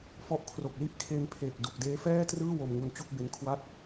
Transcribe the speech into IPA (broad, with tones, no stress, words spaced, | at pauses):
fɔ˦˥ʔkʰro˨˩k̚li˥˩ʔ kʰe˧npʰe˨˩k̚ du˨˩k̚deː˦˥fɛː˥˩ trɯː˥˩wo˧mŋu˧n t͡ɕu˥˩k̚be˦˥nkʰwa˥˩t̚